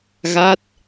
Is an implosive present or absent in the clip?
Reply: absent